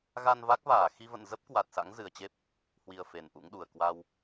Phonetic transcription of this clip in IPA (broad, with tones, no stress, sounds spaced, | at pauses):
ɣ a˧ n v a˦˥ k̚ v aː˧˩ x i˧ v ə̰˧˨ n z ə˦˥ p̚ k w a˨˩ t̚ s a̰˧˥ ŋ z ɨ˨˩ ə̯ t͡ɕ e˦˥ p̚ | h w i˧ ə̯ f e˨˩ n ʔ ṵ˧˥ ŋ ɗ u˨˩ ə̯ k w a˧ w